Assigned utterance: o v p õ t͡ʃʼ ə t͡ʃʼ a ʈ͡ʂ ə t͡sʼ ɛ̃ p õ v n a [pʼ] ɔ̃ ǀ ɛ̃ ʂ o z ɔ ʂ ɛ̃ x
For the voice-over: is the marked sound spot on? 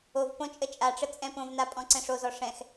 yes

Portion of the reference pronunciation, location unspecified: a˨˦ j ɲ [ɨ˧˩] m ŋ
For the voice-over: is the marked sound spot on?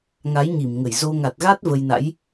no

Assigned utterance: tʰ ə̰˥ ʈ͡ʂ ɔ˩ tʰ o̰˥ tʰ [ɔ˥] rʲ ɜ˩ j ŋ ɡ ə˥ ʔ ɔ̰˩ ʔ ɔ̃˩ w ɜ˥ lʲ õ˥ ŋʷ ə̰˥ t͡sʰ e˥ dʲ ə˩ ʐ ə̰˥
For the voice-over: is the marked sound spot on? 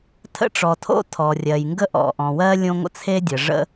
no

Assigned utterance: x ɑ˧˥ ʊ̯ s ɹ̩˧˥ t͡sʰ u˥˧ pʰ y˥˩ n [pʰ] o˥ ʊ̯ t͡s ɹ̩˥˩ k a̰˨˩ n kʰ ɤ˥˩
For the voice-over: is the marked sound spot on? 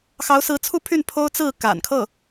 yes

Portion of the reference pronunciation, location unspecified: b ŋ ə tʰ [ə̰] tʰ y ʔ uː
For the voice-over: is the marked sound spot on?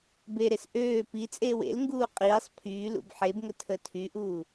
no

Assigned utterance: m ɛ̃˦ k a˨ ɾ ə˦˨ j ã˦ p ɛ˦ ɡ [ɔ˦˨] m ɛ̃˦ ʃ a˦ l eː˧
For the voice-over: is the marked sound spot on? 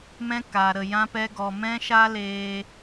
no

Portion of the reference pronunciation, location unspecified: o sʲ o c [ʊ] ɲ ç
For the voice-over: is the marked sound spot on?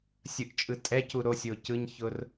no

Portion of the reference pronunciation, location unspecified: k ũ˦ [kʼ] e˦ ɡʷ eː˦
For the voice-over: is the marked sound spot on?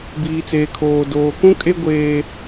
yes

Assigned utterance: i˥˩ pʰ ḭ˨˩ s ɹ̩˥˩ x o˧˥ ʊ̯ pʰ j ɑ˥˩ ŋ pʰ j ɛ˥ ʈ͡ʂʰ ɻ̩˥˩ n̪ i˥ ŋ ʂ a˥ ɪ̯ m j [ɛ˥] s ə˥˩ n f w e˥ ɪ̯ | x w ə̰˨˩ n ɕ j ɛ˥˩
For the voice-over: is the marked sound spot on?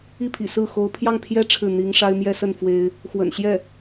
yes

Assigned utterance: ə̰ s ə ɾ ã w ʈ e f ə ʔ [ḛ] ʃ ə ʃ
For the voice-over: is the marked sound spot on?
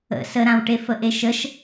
no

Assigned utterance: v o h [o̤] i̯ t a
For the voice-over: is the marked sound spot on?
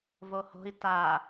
yes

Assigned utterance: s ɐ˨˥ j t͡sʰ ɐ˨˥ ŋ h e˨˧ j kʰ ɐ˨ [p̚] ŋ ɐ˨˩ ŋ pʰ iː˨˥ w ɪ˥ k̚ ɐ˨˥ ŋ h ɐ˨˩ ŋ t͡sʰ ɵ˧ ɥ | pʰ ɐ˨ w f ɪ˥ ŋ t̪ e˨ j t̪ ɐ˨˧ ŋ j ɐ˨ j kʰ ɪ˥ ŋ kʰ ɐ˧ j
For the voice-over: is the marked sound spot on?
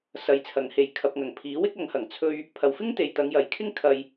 yes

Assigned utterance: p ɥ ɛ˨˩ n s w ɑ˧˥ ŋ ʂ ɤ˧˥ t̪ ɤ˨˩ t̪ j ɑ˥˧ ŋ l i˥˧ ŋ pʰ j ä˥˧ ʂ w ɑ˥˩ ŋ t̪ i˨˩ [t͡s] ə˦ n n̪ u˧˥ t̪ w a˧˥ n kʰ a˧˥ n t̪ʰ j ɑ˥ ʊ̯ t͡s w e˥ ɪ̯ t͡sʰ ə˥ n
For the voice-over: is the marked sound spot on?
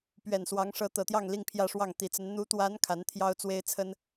yes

